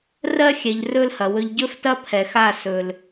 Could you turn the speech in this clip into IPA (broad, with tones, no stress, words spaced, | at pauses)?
rɜ˦xʲɛ˨ʎrɵ˦lhɐ˨ wɵ˨ʎɟɵ˦ftɐ˦ pʰɛ˨xa˦˨ sɵ˨l